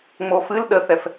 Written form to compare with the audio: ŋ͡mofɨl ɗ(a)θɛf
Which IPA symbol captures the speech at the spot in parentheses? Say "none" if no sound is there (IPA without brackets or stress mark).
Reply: ə